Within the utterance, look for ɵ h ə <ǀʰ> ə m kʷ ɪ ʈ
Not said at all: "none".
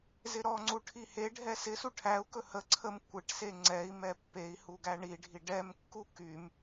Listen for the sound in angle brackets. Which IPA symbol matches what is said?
ǀʰ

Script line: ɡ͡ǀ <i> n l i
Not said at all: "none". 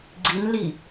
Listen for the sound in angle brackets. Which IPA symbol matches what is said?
i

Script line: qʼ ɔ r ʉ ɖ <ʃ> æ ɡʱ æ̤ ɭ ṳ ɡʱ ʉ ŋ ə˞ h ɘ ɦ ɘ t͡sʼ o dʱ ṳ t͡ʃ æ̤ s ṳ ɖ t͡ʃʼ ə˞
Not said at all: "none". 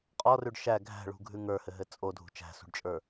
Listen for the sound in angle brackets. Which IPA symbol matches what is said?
ʃ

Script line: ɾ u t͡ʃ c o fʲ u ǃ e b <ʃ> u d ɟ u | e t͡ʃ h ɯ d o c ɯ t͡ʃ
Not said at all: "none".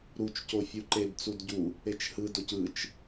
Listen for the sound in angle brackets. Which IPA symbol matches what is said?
t͡s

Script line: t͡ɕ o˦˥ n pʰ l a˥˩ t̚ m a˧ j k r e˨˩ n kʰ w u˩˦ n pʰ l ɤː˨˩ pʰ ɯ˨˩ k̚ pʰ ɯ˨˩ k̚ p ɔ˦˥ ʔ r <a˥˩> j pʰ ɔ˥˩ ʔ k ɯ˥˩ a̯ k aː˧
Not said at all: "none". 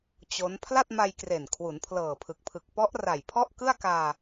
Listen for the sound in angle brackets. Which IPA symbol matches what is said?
a˨˩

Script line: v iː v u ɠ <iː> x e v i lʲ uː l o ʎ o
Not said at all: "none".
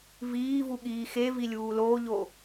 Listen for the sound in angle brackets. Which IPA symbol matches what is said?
iː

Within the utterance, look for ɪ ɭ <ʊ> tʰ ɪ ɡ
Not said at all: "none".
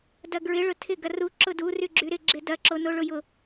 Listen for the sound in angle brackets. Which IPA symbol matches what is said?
ʊ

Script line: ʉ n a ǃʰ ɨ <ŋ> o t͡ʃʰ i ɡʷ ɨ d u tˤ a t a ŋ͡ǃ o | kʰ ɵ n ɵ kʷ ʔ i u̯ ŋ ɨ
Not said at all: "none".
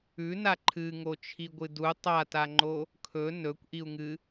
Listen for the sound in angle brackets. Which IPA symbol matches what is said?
ŋ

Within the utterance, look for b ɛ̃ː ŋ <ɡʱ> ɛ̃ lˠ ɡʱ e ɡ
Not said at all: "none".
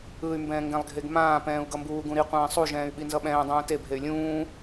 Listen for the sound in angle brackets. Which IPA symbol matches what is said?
ɡ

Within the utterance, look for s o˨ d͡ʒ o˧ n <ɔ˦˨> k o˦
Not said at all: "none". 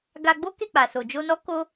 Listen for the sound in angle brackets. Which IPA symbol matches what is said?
ɔ˦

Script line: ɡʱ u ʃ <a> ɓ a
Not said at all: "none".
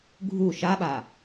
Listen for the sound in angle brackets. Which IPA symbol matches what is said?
a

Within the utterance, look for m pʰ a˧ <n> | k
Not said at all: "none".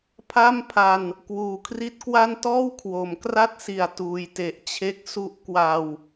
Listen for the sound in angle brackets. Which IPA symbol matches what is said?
n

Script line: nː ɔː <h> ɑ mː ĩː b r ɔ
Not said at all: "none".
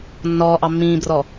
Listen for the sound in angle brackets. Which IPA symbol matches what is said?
ʔ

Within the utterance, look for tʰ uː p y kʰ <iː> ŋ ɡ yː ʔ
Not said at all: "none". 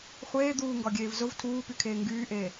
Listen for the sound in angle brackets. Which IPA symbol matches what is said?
eː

